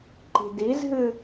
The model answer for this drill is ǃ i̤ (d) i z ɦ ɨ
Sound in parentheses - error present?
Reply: no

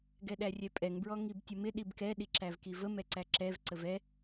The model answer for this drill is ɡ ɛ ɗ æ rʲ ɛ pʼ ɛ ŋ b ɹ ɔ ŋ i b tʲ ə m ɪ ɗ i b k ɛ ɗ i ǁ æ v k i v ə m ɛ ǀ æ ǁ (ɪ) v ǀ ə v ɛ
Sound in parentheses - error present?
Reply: yes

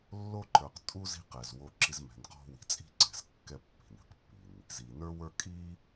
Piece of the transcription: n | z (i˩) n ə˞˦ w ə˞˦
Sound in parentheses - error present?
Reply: no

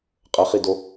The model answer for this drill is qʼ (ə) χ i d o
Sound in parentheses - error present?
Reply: no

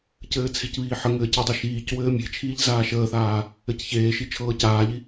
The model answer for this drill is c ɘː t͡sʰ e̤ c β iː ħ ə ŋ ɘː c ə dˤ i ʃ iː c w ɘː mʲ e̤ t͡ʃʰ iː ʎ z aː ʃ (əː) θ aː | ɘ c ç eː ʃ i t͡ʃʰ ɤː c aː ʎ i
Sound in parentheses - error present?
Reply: no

